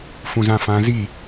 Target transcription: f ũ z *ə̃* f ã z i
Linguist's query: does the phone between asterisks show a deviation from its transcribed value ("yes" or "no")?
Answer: yes